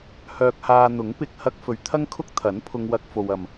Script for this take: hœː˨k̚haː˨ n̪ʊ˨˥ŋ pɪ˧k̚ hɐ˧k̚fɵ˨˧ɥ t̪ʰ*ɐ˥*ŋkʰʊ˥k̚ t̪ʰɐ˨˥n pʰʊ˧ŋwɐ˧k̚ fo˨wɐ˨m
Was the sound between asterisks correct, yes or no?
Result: yes